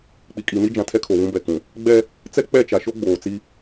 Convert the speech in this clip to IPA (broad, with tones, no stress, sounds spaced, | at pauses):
k͡p i˨ kʼ i˨ n i˦ d͡ʒ ã˨ tʰ ɛ˦ kʰ o˨ β ũ˦ b ɛ˨ k ũ˨ | ɡ͡b ɛ˦ | t͡s ɛ˦ k͡p ɛ˦˨ t͡ʃ a˨ ʃ o˦ ɡ͡b oː˨ t͡s i˦